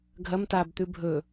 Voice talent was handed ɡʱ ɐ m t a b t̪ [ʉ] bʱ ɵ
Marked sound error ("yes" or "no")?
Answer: no